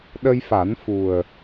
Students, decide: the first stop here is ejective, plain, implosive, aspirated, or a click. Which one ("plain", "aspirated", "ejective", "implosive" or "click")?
implosive